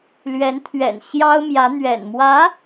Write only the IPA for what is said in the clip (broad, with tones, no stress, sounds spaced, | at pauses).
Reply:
l ɥ ɛ˧˥ n t̪ʰ ɥ ɛ̰˨˩ n ɕ j ɑ˥ ʊ̯ m j ä˧˥ n̪ ɥ ɛ̰˨˩ n m w ä˧˥